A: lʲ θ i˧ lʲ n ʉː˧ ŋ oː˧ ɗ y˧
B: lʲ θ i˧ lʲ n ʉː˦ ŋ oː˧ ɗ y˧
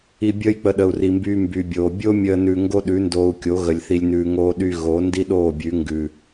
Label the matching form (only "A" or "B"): A